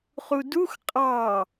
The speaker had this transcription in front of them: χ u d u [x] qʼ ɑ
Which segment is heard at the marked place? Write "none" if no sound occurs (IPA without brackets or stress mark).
x